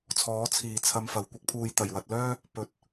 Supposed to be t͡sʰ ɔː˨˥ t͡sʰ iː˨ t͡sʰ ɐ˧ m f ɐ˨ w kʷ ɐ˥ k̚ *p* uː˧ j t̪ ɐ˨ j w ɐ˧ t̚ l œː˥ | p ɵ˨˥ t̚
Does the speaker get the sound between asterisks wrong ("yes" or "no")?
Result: yes